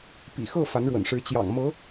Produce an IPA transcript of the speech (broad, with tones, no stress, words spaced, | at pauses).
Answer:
pḭ˨˩xɤ˥˩ fa˧˥nɻwə̰˨˩nʂɻ̩˧˥ t͡ɕjɑ̰˨˩ŋmɤ˧˥